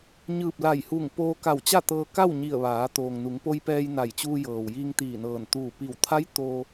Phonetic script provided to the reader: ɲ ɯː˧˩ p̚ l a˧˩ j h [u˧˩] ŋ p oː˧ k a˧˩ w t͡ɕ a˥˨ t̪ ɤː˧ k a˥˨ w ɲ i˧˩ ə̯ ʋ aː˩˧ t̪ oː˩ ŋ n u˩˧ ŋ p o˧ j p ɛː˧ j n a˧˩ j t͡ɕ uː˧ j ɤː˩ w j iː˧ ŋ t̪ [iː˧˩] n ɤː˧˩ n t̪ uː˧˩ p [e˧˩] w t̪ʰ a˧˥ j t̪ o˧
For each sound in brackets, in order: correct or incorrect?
correct, correct, incorrect: i˧˩

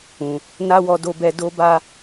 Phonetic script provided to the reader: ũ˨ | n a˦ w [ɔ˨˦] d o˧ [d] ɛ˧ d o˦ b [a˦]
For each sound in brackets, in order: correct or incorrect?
incorrect: ɔ˧, incorrect: b, correct

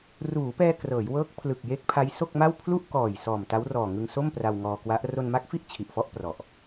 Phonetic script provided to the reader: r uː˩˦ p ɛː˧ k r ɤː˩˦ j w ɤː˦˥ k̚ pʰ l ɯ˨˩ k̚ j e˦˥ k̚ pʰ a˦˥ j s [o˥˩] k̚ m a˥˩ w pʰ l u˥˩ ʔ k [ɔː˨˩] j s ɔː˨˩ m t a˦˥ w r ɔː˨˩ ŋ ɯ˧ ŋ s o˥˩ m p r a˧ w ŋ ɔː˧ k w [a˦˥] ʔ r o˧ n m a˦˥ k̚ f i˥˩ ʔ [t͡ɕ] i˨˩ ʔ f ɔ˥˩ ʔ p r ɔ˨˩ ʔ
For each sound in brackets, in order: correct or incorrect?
correct, correct, correct, incorrect: t͡ɕʰ

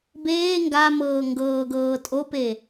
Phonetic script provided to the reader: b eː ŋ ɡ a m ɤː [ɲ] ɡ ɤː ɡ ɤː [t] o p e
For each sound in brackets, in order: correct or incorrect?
incorrect: ŋ, incorrect: tʼ

